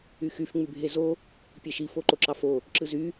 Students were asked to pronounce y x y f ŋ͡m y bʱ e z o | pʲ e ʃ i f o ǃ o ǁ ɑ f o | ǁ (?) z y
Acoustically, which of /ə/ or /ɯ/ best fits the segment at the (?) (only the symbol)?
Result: ɯ